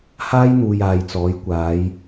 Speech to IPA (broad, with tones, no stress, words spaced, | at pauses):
haː˥jn̪uː˨j aː˨jt͡sɔː˨˧j kʷaː˨˧j